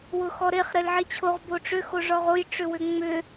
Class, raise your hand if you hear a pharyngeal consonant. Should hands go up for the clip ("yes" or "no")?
yes